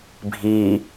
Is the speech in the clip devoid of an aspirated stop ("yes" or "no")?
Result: yes